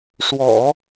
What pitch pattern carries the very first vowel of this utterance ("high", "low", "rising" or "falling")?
low